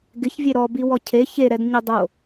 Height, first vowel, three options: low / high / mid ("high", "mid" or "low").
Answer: high